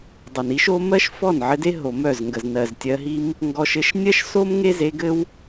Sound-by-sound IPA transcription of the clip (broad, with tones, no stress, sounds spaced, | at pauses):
dˤ ə˨ n i˦ ʃ o˦ m ɜ˦ ʃ f ɔ˦˨ n ʕ ɘ˧ d e˦ ɦ o˨ m œ˦˨ z ŋ ɡ ə˨ z n ɜ˨ z tʲ ɜ˧ ɦ i˦ m | ŋ ɡ ɔ˧ ʃ ɘ˧ ʃ nʲ ɜ˦ ʃ s o˦ m ŋ e˦ z e˧ ɡ ɘ˦ w